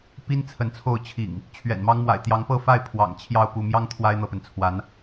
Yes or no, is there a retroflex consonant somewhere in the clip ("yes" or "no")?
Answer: no